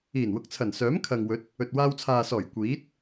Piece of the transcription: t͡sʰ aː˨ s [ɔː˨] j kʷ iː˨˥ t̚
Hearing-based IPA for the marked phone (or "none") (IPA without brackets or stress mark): ɔː˨˩